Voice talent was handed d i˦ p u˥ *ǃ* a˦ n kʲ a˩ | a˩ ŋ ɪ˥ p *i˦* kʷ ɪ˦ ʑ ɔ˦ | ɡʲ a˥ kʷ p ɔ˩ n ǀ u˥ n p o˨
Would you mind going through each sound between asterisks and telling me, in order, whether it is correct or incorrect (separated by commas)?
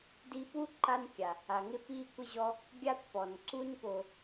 correct, correct